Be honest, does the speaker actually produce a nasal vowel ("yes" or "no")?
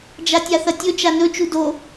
no